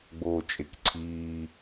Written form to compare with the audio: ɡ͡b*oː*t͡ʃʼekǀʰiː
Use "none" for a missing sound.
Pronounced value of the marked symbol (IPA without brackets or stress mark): oː